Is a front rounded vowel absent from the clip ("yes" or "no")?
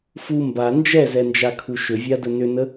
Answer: no